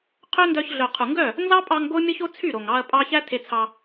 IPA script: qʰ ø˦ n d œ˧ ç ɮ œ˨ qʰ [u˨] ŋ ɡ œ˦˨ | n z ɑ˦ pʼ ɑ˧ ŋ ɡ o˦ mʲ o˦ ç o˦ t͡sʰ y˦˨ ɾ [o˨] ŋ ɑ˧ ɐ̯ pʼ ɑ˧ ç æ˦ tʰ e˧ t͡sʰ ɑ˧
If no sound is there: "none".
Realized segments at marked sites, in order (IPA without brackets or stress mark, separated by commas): u˨, o˨